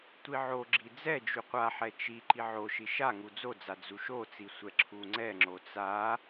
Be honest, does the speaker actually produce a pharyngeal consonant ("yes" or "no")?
yes